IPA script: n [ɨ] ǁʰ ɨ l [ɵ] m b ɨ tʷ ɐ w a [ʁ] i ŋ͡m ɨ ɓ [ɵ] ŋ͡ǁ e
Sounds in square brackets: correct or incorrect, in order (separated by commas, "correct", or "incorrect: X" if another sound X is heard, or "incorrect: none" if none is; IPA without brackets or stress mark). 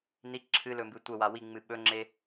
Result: incorrect: i, correct, incorrect: w, correct